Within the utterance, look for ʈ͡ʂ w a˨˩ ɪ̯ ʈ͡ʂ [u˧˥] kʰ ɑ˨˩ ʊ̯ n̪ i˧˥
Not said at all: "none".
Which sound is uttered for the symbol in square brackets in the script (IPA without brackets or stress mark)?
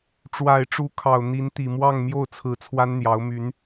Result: u˧˥